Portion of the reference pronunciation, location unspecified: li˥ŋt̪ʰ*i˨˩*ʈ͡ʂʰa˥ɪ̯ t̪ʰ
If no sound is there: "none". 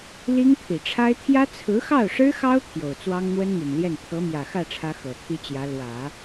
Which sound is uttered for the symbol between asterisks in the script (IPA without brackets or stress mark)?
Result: i˨˩